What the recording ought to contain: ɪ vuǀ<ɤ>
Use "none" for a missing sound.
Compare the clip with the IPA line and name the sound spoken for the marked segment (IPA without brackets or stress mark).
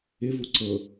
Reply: ɤ